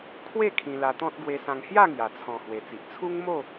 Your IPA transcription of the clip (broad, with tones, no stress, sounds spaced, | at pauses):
kʰ w e˥˧ kʰ ĩ˧ l a˧ t̪ ɔ̃˦ t̚ ɡ w e˧ s ã˧ ŋ h j a˥˧ ŋ j a˨˩ t͡sʰ ɔ̃˨˩ h w e˨˩ t͡s i˨ ʔ t͡sʰ u˦ ŋ m o˥˧